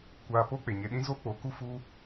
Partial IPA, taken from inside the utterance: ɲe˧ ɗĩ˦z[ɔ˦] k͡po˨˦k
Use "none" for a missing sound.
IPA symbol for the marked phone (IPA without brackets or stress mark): o˦